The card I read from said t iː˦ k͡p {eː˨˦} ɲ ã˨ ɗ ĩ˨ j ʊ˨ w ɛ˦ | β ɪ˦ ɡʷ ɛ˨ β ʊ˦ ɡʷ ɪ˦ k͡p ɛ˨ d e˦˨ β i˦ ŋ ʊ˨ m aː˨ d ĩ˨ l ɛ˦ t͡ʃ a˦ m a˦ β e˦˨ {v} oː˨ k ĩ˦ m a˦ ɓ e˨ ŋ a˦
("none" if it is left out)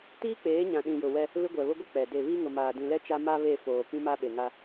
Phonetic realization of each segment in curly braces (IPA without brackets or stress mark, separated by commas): eː˨˦, f